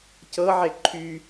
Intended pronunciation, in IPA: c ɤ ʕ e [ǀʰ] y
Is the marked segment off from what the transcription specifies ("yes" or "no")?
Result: yes